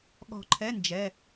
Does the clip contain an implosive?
yes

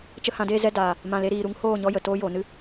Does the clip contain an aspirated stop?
no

